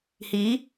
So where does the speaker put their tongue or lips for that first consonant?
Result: throat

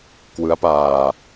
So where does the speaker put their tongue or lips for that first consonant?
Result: velum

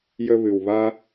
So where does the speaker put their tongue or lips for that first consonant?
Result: palate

